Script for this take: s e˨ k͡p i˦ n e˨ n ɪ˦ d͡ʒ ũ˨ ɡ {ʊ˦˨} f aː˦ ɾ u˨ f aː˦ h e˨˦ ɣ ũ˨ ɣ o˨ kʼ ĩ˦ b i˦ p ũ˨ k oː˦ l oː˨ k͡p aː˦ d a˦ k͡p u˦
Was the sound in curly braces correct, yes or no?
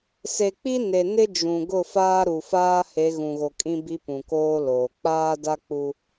yes